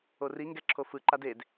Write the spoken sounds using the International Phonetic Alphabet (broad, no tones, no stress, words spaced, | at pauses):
ori ŋɡɛǁʰofɯ ǃaded